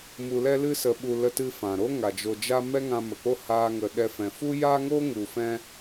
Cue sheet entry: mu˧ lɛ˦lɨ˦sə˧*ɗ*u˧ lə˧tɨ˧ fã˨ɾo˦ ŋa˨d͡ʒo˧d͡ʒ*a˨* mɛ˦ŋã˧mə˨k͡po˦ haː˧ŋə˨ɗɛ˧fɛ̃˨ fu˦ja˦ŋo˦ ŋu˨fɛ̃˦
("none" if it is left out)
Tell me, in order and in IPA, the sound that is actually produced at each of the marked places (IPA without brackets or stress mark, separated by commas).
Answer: ɓ, a˦